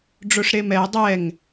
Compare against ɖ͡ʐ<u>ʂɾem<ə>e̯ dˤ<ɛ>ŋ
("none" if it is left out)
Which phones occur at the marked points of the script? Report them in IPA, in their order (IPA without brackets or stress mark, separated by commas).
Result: o, ɛ, ɛ